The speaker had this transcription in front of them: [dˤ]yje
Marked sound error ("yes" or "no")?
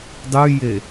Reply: no